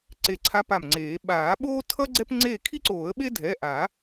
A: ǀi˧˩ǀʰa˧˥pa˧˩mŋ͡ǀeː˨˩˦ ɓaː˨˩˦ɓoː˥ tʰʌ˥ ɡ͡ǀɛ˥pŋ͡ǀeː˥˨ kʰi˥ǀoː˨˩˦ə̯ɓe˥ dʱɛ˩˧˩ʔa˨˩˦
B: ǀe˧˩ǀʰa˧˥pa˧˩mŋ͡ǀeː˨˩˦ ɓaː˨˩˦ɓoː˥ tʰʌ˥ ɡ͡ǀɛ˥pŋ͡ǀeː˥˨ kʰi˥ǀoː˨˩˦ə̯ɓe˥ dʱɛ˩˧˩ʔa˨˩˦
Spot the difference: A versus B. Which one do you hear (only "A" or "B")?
B